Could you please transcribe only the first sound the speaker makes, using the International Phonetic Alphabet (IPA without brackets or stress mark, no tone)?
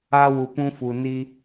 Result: a